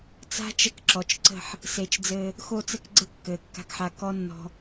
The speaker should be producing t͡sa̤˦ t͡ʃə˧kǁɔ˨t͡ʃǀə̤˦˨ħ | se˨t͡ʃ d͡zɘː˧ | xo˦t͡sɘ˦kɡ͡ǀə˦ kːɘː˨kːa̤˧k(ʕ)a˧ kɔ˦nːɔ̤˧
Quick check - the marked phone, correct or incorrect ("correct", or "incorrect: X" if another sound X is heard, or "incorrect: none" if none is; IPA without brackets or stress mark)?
incorrect: ħ